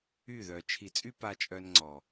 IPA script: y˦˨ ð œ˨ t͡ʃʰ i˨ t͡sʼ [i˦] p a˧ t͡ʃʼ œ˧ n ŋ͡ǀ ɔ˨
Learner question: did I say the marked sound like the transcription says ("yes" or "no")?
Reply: no